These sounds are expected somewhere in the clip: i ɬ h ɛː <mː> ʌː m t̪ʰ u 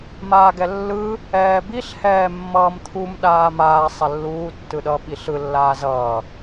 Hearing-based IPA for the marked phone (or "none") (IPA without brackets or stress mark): mː